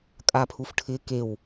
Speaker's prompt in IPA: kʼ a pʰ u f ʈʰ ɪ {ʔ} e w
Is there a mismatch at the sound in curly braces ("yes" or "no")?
yes